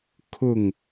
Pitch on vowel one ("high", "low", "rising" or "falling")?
falling